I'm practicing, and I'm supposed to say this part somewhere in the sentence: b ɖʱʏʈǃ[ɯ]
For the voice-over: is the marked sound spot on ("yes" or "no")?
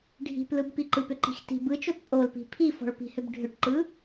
yes